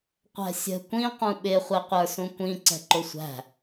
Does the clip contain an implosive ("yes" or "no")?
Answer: yes